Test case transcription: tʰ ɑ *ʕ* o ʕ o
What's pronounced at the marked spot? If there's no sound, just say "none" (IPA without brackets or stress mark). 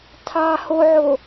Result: h